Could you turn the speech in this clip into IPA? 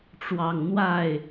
ʈ͡ʂ w ɑ˨˩ ŋ n̪ w a˥˩ ɪ̯

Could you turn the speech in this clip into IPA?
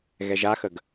ɣ ɛ ʒ a x ə ɡ

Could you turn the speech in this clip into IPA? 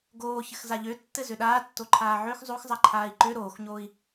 ɡ oː ç ɘ x z a ʎ ø tː ɘ z ø ɗ aː tː o ǃʰ aː ʕ ø x zˤ o x zˤ a ǃʰ aː i̯ ǃ ø ɾ oː x ɲ oː i̯

